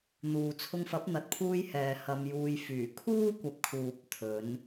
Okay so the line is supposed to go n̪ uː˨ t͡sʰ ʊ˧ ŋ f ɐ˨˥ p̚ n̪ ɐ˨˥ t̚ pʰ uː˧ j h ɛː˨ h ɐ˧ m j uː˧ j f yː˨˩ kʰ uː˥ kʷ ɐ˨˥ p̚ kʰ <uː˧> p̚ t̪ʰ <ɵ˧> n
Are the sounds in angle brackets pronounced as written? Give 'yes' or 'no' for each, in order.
no, no

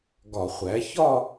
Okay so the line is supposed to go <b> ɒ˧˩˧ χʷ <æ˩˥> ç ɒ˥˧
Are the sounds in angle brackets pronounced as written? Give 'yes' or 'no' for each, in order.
no, yes

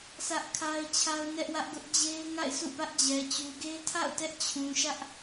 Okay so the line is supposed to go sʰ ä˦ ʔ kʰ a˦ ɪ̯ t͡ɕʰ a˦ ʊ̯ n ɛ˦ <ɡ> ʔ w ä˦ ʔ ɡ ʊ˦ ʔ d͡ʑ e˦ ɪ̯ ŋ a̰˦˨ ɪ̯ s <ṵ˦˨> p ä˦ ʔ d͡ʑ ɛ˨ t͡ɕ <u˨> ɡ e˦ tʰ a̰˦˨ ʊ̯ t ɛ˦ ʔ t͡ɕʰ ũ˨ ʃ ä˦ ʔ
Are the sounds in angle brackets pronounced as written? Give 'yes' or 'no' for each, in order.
no, yes, yes

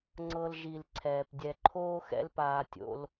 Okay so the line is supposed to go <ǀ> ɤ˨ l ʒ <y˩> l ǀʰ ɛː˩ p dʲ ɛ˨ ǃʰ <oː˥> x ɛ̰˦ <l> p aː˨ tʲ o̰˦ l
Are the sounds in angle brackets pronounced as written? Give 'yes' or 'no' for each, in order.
no, no, yes, yes

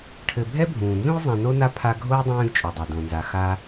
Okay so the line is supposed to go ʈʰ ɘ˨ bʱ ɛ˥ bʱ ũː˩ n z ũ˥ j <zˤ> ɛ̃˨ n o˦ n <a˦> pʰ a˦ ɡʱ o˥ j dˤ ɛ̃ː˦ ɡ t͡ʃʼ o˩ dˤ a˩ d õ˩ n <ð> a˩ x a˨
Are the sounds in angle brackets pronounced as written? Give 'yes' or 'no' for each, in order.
yes, yes, no

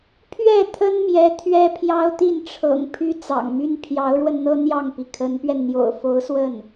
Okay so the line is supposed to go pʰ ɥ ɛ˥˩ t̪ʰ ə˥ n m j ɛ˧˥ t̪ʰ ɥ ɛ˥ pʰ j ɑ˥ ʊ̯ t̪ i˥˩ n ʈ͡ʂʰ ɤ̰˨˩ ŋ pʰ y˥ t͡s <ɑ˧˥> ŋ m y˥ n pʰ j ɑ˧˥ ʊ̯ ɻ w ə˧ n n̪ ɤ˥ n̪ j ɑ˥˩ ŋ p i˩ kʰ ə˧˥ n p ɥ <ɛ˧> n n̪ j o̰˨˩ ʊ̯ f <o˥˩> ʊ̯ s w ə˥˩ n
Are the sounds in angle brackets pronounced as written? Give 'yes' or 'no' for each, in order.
no, yes, no

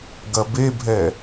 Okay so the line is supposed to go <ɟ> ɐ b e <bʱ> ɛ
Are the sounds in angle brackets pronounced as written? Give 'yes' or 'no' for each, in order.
no, yes

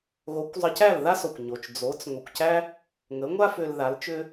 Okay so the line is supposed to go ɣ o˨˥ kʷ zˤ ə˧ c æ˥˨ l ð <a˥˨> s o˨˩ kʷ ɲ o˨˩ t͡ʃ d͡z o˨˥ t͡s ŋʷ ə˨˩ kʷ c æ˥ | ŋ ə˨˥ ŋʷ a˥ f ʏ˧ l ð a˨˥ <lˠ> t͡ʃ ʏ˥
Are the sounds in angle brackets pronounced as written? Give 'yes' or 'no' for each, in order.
no, no

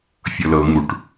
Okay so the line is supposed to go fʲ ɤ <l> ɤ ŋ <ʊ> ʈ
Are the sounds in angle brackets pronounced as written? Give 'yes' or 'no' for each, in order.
yes, no

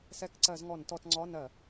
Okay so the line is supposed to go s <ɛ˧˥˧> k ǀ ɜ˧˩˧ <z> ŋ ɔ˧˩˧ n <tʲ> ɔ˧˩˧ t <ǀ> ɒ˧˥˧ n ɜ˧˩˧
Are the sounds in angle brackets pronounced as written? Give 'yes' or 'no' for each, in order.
yes, yes, no, no

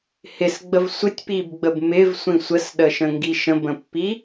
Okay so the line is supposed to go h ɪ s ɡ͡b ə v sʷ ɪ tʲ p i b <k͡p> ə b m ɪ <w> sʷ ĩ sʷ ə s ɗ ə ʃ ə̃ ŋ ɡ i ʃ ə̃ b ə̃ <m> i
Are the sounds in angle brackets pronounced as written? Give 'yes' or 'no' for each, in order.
no, no, no

